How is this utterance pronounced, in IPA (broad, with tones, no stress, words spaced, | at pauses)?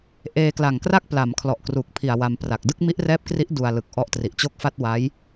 ʔeː˧kla˨˩ŋkra˥˩k̚pla˩˦m kʰlɔ˨˩ʔkru˨˩k̚pʰi˨˩a̯ wa˧mpra˨˩k̚ dɯ˥˩k̚mi˦˥ʔrɛː˦˥p̚kri˦˥ʔ du˧a̯lɯ˨˩k̚ ʔɔ˦˥ʔ tri˨˩ʔt͡ɕo˥˩k̚fa˥˩t̚ wa˦˥j